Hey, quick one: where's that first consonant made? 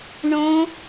retroflex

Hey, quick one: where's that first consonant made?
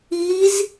tongue tip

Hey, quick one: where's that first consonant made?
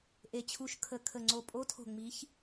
throat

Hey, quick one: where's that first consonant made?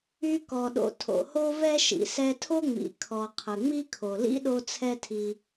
velum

